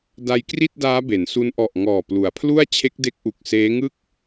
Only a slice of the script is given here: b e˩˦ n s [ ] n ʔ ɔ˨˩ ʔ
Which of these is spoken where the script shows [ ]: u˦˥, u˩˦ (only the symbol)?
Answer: u˦˥